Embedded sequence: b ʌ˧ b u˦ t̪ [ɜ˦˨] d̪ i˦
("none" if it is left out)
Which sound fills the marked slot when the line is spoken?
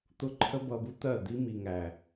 ɜ˦˨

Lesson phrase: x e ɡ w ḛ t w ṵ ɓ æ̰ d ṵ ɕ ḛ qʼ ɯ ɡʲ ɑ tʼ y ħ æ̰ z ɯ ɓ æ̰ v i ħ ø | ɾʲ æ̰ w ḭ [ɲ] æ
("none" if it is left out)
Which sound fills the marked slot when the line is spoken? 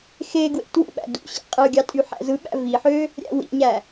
ɲ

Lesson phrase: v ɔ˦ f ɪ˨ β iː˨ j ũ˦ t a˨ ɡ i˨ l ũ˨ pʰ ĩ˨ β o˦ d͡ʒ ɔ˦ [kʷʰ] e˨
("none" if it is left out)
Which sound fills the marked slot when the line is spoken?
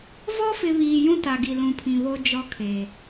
kʰ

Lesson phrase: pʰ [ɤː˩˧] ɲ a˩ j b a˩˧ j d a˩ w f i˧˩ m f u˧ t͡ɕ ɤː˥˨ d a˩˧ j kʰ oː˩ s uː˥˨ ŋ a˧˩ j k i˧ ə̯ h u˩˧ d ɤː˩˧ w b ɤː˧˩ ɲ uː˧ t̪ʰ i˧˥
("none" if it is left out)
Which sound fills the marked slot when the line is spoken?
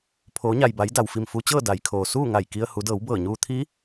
oː˩˧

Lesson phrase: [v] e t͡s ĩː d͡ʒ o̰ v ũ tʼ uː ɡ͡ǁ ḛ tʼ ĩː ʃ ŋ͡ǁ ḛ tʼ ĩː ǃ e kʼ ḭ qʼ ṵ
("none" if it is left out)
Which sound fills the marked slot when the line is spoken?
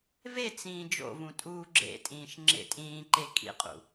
v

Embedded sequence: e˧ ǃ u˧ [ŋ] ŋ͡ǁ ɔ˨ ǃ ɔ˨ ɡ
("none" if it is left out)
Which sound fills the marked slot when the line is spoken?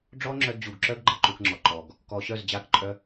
k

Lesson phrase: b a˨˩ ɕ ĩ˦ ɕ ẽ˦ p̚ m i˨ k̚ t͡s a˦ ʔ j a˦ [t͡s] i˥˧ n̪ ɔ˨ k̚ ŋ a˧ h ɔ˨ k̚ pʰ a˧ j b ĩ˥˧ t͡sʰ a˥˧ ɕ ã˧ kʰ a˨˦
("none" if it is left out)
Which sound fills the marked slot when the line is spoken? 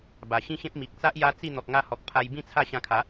t͡s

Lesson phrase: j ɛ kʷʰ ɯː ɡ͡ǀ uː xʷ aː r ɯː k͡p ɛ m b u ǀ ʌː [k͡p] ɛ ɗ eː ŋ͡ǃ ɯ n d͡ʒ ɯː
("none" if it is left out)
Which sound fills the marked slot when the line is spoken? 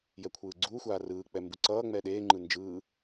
ŋ͡m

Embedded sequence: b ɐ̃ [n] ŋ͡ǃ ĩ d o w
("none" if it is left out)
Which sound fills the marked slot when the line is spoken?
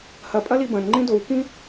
n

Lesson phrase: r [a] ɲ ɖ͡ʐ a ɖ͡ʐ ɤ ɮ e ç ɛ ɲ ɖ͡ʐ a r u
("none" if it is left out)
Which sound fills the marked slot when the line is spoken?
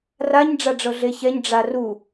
a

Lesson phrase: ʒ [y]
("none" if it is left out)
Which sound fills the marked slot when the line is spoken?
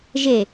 e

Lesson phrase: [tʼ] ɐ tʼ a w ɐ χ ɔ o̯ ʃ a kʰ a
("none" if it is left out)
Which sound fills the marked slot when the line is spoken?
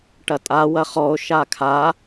ʈ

